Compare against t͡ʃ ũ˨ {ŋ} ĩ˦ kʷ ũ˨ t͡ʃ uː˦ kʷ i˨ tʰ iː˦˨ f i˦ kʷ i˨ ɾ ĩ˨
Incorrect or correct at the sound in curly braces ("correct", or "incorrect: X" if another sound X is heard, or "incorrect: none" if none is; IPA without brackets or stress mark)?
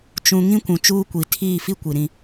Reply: correct